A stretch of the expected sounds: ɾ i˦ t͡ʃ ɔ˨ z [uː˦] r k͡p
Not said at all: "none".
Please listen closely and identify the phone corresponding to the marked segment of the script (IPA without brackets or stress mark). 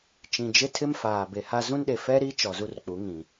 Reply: u˦